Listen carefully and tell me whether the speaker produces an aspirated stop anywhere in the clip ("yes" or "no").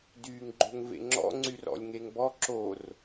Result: no